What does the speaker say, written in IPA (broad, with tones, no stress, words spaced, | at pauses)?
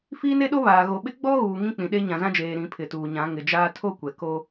fiː˦ne˦ɗo˦ βaː˨ ɣo˨ɓɪ˦ ɡ͡bɔ˦ɣuː˨ ŋĩ˦k͡pĩ˨ɗe˦ ɲã˨zã˦d͡ʒeː˨ ɾĩ˨˦pʰɪ˨tuː˨ɲã˨˦ ŋɪ˨d͡ʒaː˦ tʰo˦ kʷɛ˨ko˦